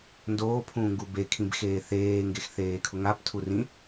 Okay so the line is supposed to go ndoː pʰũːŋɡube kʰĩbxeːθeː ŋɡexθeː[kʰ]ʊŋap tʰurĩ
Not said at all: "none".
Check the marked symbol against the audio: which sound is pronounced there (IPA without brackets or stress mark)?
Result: kʰ